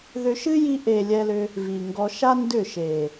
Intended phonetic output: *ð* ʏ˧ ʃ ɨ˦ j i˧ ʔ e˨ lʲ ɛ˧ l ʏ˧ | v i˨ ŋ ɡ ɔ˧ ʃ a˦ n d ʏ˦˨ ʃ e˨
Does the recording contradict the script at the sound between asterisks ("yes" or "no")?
no